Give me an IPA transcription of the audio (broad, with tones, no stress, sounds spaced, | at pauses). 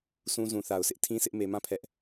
s ũ˦ z ũ˨ θ a˨ ʊ̯ sʰ ɪ˦ ʔ tʰ ĩ˦ s ɪ˦ ʔ m e˨ m ã˦˨ pʰ ɛ˦ ʔ